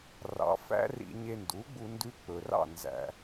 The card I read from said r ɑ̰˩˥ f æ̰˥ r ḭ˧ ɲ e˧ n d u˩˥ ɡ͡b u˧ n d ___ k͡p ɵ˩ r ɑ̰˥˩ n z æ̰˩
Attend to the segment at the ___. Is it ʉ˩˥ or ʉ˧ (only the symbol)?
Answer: ʉ˧